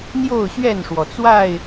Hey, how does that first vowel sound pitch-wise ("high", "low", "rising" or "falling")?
falling